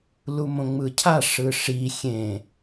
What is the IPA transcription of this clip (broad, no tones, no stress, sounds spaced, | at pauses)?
l u m õ ŋ͡m ɯ cʰ a ʂ ɯ ʂ i xʲ ẽ